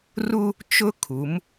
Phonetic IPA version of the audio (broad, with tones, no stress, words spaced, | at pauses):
ru˦ | t͡ʃʊ˦ kʰu˨˦m